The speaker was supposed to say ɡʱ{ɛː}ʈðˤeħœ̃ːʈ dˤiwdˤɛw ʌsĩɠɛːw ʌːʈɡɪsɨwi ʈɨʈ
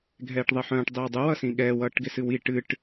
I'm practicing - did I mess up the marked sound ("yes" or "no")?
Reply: no